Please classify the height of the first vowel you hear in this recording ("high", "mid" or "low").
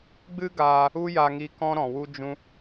high